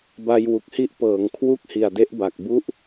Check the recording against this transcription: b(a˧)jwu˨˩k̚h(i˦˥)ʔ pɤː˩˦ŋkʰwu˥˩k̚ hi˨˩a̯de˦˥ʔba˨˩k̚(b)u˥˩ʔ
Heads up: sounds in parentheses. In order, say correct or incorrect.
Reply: correct, correct, correct

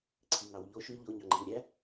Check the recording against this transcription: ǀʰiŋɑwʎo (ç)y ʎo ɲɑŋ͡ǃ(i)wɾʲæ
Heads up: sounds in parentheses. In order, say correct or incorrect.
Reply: incorrect: ʃ, correct

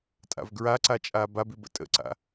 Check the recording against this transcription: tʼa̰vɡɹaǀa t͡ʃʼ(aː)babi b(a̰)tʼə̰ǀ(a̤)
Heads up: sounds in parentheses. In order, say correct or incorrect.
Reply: correct, incorrect: ə̰, incorrect: a̰

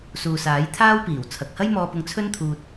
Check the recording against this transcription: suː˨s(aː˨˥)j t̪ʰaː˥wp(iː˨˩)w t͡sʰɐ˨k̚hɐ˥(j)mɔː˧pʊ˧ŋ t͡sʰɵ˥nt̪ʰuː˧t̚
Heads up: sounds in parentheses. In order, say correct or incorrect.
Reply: correct, correct, correct

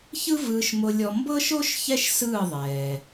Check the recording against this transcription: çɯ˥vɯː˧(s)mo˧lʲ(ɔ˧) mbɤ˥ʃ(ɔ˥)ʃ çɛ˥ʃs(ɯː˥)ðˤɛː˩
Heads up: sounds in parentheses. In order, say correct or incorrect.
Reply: incorrect: ʃ, correct, incorrect: o˥, incorrect: ɯː˥˩

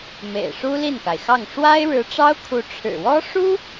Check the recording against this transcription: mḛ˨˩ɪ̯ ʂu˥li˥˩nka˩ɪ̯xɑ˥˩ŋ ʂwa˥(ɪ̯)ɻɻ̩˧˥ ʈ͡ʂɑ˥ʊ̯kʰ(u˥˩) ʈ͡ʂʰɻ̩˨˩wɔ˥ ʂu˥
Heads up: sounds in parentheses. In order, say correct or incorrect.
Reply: correct, incorrect: u˧˥

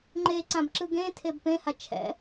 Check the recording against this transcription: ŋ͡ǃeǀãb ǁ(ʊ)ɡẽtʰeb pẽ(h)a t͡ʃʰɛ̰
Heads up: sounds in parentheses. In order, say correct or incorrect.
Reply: incorrect: ɯ, correct

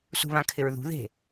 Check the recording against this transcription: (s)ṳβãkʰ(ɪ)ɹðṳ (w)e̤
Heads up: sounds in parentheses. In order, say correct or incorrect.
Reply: correct, correct, incorrect: ð

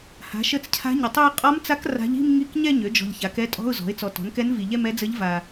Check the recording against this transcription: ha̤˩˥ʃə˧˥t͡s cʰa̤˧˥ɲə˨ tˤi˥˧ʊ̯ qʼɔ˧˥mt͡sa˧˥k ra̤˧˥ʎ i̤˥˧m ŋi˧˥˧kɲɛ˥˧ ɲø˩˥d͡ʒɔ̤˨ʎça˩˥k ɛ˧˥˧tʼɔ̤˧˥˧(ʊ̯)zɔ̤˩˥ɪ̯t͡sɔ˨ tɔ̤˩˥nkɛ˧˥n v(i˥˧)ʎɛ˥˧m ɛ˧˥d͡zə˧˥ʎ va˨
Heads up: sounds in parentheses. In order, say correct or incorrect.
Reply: correct, incorrect: i˨

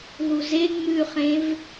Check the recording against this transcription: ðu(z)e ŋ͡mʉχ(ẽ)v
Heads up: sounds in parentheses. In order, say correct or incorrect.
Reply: correct, correct

